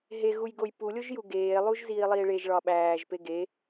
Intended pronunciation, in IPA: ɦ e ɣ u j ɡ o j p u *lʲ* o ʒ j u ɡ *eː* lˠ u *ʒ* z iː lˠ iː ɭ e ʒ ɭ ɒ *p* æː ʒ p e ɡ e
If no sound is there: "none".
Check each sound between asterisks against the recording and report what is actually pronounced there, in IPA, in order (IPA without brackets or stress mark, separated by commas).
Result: lʲ, eː, ʒ, ɓ